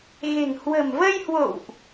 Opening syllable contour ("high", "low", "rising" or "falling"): low